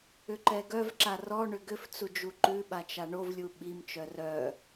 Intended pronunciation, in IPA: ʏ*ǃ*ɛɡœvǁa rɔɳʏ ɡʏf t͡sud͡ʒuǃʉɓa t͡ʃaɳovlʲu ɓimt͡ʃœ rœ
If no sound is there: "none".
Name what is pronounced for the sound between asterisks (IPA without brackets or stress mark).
ǃ